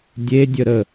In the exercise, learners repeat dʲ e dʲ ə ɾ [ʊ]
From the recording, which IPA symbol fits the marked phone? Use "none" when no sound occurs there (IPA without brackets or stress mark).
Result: ə